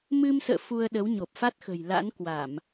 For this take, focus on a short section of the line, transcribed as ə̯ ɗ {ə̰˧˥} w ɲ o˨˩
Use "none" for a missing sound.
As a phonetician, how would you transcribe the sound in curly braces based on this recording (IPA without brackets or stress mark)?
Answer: ə˨˦